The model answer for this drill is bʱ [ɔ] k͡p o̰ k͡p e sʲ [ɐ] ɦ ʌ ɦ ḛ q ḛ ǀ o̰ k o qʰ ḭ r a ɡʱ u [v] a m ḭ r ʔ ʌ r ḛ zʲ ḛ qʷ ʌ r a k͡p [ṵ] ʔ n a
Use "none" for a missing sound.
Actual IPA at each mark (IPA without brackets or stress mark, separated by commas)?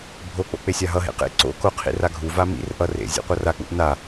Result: o, a, v, ṵ